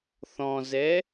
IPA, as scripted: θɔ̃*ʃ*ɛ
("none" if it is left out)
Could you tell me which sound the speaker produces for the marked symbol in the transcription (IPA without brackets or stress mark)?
z